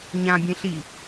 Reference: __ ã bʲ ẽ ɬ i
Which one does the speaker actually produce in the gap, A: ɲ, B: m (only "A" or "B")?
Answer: A